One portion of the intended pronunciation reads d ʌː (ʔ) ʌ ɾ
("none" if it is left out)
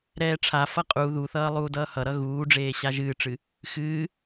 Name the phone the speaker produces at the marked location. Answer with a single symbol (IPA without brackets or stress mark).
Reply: h